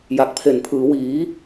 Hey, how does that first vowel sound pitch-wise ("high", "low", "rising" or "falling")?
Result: low